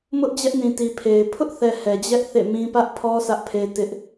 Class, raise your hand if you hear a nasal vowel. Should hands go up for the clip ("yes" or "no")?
yes